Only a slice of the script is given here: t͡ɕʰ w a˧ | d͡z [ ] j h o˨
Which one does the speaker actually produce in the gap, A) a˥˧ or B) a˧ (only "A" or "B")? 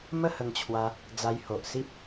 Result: B